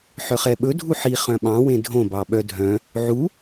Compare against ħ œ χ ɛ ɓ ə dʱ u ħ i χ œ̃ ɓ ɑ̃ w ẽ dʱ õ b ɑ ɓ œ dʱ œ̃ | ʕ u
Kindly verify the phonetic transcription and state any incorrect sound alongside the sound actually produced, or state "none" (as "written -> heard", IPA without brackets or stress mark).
ə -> ɵ